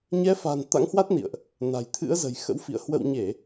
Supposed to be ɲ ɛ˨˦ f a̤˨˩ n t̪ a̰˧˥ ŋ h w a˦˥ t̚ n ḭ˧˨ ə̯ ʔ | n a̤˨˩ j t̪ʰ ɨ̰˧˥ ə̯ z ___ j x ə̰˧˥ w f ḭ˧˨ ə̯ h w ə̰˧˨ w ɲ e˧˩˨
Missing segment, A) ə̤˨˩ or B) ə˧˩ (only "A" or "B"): A